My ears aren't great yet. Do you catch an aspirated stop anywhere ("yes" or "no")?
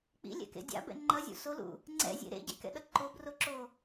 no